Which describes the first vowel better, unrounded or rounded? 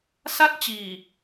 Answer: unrounded